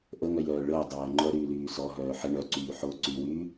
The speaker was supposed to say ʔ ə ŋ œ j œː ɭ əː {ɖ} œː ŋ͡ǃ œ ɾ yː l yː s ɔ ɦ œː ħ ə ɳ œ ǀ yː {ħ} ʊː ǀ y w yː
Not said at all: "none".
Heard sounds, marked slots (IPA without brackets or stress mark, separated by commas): dˤ, ħ